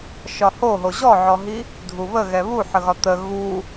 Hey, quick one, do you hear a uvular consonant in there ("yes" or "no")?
no